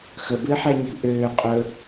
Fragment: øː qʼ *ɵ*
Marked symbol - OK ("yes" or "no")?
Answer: yes